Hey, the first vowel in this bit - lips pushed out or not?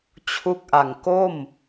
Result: yes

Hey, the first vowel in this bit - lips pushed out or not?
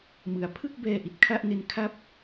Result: no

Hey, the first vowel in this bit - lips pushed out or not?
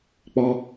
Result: yes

